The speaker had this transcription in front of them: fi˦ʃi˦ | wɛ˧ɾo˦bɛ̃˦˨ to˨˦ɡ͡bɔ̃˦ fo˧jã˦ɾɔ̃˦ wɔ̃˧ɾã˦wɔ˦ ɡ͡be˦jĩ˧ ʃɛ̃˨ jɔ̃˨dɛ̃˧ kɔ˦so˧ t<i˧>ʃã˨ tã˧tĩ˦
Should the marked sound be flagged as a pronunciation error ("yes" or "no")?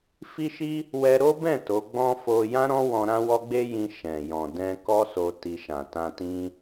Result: no